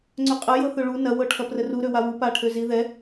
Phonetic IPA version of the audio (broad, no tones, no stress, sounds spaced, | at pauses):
ŋ͡ǀ ɵ qʼ ɐ j ɤ θ ø ɭ u n ɐ w ɤ ʈʰ ɐ p r ə r u ɾ ø w a w u p a ʈʰ ø z i ð ɛ